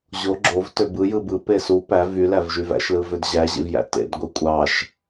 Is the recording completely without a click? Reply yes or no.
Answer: no